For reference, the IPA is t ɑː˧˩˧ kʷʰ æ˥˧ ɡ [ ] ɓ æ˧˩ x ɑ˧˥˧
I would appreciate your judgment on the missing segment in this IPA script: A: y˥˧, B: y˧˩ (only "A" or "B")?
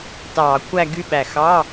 A